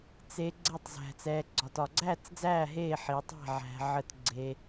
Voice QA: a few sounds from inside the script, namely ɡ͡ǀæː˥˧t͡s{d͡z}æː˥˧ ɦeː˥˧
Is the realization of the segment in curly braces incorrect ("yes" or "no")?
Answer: no